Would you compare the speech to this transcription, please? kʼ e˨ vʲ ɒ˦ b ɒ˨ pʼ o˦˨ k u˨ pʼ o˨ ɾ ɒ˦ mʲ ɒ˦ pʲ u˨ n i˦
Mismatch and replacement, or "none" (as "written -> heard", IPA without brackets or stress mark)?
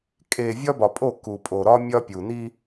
none